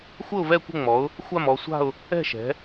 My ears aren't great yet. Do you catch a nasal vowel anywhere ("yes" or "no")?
no